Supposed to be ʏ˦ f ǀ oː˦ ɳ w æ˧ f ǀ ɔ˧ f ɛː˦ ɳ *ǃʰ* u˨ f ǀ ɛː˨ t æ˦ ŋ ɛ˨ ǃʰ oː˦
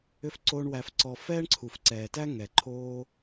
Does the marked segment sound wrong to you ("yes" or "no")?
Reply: yes